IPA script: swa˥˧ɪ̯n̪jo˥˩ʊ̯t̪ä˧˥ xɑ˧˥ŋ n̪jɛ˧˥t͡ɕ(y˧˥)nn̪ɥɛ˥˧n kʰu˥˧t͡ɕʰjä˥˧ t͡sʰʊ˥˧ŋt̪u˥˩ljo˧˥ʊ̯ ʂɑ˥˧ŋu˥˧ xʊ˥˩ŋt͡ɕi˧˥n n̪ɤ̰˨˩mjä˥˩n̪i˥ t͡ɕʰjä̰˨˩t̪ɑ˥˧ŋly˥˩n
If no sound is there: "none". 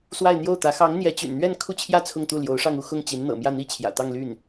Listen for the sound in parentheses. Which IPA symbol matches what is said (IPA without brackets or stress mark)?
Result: y̰˨˩